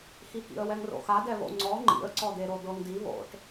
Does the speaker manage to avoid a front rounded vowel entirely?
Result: yes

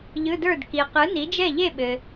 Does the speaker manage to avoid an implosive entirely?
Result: no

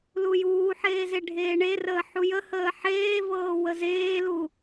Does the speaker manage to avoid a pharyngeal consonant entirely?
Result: no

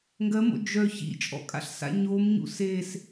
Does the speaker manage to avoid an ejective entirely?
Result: no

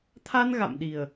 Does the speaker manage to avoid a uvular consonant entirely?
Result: yes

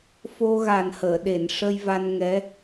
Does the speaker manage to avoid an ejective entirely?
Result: yes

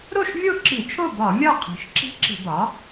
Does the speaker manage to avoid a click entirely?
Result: no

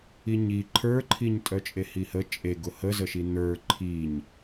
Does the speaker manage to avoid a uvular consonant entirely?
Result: yes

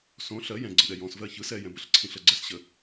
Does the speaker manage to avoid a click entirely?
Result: no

